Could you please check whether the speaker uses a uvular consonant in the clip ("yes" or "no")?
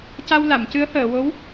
no